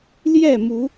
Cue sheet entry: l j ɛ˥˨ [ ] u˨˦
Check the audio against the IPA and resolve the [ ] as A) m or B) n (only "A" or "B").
A